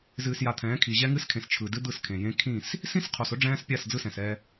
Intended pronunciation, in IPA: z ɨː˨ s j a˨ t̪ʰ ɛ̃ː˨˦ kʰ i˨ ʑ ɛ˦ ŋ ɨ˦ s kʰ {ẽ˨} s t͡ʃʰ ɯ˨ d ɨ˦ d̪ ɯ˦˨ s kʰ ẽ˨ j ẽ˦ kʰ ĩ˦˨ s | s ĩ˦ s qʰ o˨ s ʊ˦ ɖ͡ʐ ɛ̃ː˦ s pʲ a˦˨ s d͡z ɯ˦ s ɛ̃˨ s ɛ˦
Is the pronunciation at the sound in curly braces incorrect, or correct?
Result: correct